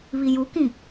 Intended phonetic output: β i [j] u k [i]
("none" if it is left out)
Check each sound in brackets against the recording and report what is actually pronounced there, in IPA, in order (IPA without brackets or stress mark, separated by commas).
j, ĩ